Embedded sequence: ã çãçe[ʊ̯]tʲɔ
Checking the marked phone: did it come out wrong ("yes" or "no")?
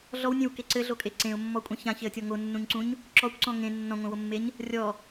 yes